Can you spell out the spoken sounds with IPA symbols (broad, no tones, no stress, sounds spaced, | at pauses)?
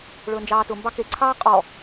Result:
ɭ ɵː n d͡ʒ ɑː t ʊ m b ɑ k e ǀʰ ɑː qʼ ɔ